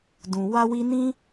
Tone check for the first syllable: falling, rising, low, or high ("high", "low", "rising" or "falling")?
low